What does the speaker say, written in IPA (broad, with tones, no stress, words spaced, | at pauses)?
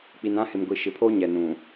k͡pi˨nã˦hɪ˨mɡʷi˨ ʃɪ˨pʰoː˦ɲɛ˨ nũ˨